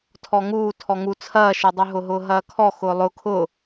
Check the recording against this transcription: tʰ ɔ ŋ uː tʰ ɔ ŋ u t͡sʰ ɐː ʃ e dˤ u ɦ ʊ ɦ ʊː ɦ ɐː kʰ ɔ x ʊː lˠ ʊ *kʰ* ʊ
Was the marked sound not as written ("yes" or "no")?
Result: no